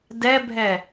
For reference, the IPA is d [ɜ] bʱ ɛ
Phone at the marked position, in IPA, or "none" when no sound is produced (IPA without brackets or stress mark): ɛ